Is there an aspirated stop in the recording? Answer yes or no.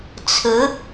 yes